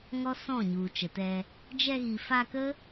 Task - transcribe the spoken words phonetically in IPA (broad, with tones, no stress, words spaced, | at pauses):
ŋɔ˦sɔ̃˦˨ɲu˨ t͡ʃə˨tɛ˧ | d͡ʒɛ˧ ɣi˨fa˧kə˦